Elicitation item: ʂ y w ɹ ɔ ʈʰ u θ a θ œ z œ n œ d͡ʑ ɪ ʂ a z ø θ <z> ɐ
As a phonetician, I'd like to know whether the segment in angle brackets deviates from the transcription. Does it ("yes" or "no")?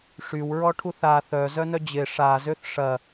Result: yes